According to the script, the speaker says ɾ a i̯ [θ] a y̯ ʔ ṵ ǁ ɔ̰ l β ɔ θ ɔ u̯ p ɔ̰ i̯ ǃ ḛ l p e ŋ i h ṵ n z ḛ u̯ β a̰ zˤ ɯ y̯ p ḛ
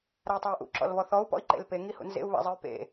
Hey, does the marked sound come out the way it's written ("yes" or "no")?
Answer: no